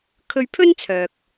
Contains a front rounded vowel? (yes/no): yes